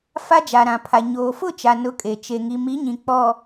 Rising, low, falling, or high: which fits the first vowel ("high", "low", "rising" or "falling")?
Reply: high